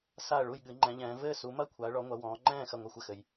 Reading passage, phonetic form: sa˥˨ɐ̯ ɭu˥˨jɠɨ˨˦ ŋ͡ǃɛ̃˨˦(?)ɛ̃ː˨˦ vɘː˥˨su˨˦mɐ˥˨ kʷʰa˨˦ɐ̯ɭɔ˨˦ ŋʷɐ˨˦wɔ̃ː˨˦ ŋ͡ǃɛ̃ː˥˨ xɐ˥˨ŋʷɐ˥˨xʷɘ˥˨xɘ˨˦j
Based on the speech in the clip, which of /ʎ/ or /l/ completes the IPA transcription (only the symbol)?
ʎ